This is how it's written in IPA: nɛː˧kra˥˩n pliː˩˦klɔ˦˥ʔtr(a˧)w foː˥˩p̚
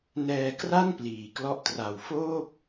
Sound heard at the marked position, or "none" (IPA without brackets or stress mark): a˨˩